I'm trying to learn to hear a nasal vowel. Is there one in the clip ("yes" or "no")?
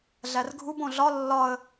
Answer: yes